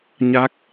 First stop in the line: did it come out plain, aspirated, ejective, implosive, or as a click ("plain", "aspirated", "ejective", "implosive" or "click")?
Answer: plain